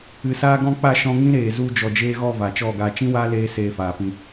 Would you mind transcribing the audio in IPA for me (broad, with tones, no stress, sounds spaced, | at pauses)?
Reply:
ɨ˨ s aː˧ ɡ ɔ̃˧ k͡p a˦˨ ʃ ɔ̃˧ ŋ ĩ˦ ɾ eː˨ z u˧ d͡ʒ ɔ˨ d͡ʒ eː˧ ɣ ɔ˦˨ v a˨ t͡ʃ ɔ˦˨ ɡ a˧ t͡ʃ ĩ˦ w aː˦ l eː˧ s eː˧ f aː˨ p ĩ˧